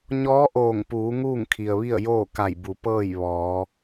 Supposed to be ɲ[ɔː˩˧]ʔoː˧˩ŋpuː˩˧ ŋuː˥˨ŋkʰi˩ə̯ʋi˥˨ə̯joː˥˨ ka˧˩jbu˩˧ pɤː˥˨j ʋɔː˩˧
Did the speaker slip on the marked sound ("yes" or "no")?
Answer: yes